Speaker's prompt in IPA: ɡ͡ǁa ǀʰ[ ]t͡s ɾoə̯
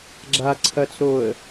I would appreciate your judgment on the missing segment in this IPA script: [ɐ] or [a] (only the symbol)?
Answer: ɐ